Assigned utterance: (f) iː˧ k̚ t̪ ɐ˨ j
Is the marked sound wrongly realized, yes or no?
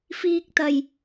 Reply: no